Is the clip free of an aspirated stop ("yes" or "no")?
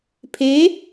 no